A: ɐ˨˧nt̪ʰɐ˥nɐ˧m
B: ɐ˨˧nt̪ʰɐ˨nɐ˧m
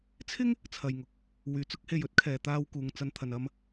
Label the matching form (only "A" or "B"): B